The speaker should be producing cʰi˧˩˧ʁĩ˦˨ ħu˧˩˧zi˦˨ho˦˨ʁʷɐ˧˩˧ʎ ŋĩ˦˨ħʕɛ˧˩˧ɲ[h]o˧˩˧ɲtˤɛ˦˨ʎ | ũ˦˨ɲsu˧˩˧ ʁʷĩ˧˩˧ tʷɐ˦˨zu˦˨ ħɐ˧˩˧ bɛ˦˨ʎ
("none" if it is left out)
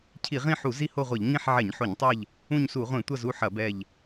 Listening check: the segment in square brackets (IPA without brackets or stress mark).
ħ